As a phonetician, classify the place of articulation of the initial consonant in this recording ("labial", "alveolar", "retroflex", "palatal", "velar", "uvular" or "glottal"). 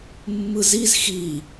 labial